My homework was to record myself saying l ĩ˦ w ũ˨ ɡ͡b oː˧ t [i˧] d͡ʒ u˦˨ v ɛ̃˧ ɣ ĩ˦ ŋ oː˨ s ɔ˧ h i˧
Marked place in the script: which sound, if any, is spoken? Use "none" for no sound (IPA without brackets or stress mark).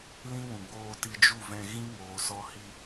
i˧